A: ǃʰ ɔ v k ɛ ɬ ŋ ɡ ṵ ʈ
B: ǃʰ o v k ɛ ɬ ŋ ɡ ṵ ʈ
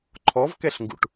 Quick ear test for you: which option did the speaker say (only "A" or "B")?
A